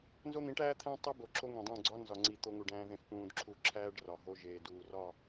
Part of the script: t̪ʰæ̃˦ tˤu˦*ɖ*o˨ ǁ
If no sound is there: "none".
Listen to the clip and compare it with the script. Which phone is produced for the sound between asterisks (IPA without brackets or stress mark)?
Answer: b